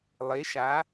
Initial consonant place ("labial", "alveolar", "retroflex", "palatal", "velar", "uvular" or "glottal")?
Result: alveolar